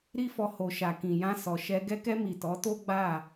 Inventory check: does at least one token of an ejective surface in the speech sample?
no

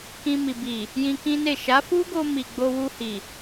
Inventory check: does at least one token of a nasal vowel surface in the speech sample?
yes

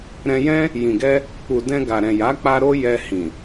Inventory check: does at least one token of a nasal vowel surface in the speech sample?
yes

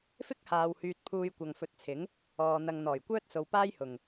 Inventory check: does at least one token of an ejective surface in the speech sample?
no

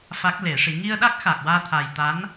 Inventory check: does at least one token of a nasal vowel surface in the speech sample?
no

